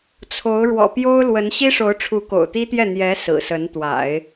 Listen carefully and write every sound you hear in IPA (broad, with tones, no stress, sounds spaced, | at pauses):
t͡sʰ o˧˥ ʊ̯ ɻ w ɔ̰˨˩ p j o˥ ʊ̯ l w ə˧˥ n ɕ i˥ ʂ o˧˥ ʊ̯ ʈ͡ʂʰ u˧˥ k o̰˨˩ ʊ̯ t̪ i˥ t̪ j ɛ˥˩ n̪ j ɛ˧˥ s ɹ̩˨˩ s ə˧˥ n t̪ w a̰˨˩˦ ɪ̯